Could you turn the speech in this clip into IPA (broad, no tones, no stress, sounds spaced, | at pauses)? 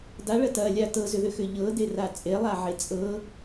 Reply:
d a ɭ ɐ t ɐ lʲ a t ɤ z ʏ ð ʏ x ʏ ʎ ɤ d e r a t͡sʼ e lˠ a ʕ e t͡sʼ ɤ